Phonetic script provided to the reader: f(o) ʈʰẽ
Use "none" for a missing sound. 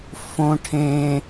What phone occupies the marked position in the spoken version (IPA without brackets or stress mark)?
õ